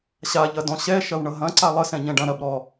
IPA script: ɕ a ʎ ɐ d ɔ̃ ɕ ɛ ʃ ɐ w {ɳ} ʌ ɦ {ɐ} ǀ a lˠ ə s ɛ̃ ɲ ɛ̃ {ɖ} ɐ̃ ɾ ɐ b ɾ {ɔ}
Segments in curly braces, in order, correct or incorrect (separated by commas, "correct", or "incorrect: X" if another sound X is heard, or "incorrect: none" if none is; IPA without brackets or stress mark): correct, incorrect: ɐ̃, correct, correct